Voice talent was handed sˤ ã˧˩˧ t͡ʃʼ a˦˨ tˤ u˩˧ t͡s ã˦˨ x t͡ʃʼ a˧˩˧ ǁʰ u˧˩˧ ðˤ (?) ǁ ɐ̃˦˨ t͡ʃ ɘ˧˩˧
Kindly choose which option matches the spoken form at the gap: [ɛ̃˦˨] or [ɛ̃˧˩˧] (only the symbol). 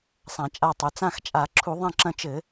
ɛ̃˦˨